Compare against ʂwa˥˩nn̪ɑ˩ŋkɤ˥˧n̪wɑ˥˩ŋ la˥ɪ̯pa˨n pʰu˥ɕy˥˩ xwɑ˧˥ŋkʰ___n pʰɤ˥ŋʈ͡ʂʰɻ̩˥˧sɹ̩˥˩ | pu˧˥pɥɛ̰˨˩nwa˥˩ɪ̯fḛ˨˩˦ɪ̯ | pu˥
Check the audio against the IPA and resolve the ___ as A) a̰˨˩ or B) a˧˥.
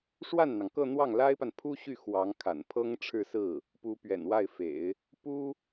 A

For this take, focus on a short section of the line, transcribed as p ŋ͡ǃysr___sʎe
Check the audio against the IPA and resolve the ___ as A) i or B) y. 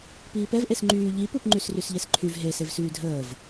B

